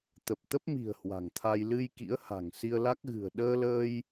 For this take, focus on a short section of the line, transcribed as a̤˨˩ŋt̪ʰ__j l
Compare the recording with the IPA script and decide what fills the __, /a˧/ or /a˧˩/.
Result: a˧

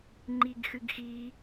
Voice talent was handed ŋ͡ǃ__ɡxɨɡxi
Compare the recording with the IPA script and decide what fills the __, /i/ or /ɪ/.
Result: i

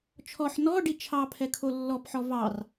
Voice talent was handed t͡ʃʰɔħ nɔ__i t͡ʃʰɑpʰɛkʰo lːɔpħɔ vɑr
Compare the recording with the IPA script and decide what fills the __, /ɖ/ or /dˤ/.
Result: ɖ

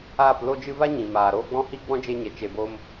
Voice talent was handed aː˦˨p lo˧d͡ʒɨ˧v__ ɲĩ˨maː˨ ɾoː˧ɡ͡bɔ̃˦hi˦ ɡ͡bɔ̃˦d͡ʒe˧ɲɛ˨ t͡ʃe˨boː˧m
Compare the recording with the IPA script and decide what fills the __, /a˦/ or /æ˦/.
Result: a˦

